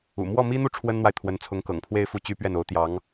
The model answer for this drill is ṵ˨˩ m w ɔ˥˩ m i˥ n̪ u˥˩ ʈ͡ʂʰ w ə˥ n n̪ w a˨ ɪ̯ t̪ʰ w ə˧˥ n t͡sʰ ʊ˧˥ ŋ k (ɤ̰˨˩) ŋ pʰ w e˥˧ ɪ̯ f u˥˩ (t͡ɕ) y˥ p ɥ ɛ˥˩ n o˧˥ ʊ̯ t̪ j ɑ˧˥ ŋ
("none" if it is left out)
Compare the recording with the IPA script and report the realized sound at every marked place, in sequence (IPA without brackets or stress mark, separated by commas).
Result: ɤ̰˨˩, t͡ɕ